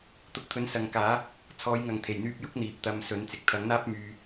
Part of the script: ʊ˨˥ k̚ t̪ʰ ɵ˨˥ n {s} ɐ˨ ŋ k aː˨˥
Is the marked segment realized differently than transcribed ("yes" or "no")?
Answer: no